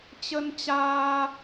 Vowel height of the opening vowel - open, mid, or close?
mid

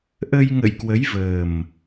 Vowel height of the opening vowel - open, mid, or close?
mid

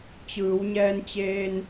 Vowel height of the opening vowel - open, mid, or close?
close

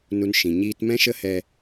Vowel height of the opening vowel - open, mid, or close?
close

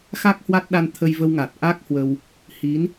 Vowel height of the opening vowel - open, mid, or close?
open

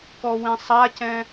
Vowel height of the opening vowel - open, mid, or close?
mid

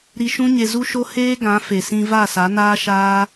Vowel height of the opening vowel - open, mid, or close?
close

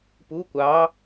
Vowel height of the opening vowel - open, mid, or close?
close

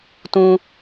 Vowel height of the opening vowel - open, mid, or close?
close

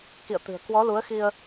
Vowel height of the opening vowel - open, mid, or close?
close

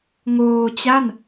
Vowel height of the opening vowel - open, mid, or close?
mid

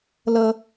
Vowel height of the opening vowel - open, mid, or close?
mid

